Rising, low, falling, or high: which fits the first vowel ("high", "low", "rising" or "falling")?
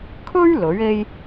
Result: high